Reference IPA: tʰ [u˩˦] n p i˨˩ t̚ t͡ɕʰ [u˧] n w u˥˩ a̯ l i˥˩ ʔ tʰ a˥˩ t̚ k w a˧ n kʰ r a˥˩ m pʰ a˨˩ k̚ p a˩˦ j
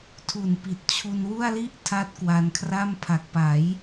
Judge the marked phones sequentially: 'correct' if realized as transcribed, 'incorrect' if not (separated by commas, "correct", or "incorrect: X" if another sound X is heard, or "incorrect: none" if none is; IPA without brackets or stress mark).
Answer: incorrect: u˨˩, correct